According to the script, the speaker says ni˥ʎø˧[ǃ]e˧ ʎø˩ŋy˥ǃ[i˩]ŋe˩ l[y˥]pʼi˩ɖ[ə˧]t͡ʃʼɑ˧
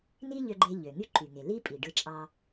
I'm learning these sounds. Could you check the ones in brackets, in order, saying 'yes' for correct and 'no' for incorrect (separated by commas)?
no, no, no, no